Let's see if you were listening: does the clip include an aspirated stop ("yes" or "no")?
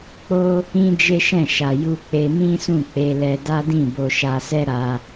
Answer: no